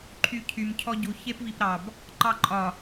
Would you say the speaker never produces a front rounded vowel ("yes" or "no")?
no